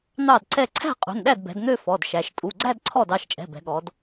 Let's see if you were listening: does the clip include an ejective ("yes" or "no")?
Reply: yes